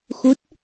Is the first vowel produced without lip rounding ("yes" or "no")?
no